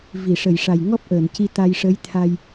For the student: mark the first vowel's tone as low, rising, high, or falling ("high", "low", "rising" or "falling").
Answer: low